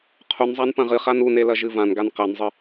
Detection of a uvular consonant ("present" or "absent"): present